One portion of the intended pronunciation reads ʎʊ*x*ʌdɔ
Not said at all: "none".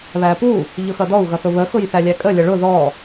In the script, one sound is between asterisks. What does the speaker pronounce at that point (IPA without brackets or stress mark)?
x